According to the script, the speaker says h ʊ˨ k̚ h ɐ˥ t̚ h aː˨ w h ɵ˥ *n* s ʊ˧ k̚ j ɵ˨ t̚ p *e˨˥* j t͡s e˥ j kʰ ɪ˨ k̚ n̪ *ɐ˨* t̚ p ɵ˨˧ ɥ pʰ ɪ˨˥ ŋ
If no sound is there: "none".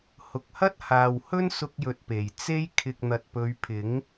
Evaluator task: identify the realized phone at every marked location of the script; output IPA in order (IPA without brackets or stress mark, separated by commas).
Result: n, e˨˩, ɐ˨